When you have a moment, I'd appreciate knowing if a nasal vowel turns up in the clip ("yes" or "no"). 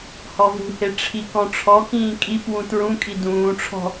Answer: yes